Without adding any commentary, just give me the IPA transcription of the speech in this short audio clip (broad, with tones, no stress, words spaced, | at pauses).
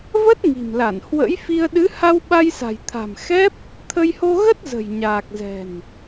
və˦˥t̚ŋi̤˨˩mla˧˩n hwə̰˧˥jfi˧ə̯ ɗɨ˨˦ ha˧wɓa˧jsa̤˨˩jt̪ʰa̤˨˩m xɛ˦˥p̚ | t̪ʰə˧jho˧ɣə˦˥t̚ zə̤˨˩jɲaː˨˩k̚zɛ̤˨˩n